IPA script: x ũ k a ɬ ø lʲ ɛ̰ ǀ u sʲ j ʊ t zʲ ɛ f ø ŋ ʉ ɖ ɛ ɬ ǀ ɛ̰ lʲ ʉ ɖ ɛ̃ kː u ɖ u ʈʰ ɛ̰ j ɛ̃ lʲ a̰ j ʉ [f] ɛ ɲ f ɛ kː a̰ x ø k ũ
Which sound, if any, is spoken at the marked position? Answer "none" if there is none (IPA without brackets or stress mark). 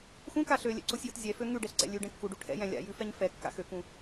f